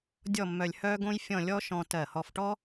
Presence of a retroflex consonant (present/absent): present